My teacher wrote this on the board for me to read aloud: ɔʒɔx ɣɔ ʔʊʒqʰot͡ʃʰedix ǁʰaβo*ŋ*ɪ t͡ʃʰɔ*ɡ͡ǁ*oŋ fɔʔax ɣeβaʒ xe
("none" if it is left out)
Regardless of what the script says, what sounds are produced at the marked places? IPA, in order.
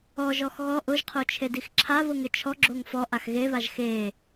ŋ, ɡ͡ǁ

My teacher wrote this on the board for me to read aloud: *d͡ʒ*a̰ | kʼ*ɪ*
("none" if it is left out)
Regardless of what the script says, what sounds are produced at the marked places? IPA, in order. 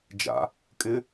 d͡ʒ, ɪ

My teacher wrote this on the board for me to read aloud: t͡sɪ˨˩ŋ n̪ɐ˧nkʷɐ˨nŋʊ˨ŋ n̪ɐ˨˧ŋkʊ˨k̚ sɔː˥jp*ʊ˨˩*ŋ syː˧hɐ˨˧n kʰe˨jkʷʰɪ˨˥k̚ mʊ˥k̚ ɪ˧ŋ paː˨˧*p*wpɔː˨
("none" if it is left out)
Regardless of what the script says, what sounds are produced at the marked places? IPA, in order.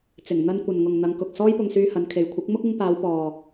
ʊ˧, none

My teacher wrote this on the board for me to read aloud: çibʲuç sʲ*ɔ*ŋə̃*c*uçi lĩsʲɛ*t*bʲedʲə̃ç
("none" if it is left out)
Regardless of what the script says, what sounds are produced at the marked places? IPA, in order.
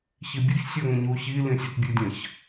ɔ, ɲ, t

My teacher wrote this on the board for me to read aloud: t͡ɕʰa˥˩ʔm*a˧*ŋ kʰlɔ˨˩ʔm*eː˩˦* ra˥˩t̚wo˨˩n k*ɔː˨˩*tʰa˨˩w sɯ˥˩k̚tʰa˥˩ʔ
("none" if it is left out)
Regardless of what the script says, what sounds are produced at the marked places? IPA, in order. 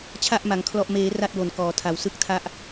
a˩˦, eː˩˦, ɔː˩˦

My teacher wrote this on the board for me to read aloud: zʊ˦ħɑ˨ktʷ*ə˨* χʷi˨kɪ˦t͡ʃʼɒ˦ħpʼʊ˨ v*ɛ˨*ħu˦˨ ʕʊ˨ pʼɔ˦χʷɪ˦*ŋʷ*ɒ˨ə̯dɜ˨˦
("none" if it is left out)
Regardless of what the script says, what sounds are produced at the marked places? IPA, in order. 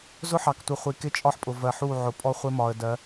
ə˨, ɜ˨, m

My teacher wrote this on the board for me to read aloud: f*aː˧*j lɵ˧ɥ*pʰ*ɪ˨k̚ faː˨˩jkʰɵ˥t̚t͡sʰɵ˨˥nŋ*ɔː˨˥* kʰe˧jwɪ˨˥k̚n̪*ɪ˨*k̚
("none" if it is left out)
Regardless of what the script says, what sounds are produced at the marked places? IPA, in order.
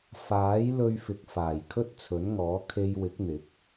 aː˨˥, f, ɔː˨˥, ɪ˨˥

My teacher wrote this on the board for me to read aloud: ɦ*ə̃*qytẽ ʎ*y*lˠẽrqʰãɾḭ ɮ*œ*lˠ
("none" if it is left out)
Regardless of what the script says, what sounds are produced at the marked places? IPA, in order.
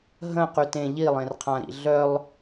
ə̃, i, œ

